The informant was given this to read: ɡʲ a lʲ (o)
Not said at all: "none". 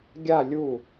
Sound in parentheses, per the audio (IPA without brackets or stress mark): u